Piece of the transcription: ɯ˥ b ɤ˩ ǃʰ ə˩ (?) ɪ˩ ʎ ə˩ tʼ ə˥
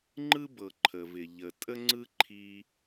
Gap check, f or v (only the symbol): v